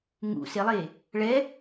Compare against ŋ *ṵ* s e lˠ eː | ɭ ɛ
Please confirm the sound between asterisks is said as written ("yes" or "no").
yes